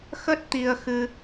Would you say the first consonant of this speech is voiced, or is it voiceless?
voiceless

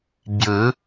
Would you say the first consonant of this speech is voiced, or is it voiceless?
voiced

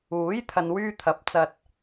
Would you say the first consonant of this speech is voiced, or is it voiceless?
voiced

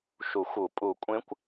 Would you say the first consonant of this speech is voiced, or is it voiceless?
voiceless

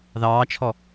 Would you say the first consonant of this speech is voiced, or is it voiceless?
voiced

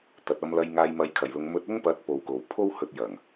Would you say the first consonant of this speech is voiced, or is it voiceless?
voiceless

